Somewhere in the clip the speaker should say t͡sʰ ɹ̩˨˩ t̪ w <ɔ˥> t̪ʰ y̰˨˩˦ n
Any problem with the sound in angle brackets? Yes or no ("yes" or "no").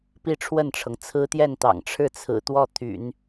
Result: yes